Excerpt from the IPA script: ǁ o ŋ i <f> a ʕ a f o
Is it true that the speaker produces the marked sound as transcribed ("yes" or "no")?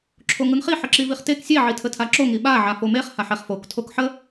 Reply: no